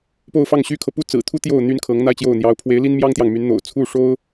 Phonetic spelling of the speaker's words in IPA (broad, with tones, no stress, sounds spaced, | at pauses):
p o˥˧ ʊ̯ f ɑ˥˩ ŋ ɕ y˥ kʰ ɤ˨ p u˥ t͡s ɹ̩˨˩ t̪ʰ u˥ t̪ j o˥˩ ʊ̯ n̪ y˥ n kʰ ɤ˧˥ ŋ n̪ a˥˧ ɪ̯ t͡ɕ j o˥˩ ʊ̯ n̪ j ɑ˧˥ ʊ̯ pʰ w e˧˥ ɪ̯ l i˥ n m j ɑ˥ ŋ t̪ j ɑ˨ ŋ m y˧˥ n n̪ o̰˨˩ ʊ̯ t͡sʰ u˥˩ ʂ o˥ ʊ̯